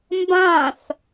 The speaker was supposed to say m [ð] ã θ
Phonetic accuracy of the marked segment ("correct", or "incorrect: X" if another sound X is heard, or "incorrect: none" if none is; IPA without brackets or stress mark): incorrect: b